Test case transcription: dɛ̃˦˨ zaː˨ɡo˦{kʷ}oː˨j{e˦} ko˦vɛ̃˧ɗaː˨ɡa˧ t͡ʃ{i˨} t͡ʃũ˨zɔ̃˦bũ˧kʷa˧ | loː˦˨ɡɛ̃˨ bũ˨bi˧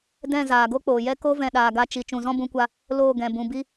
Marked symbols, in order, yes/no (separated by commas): no, no, yes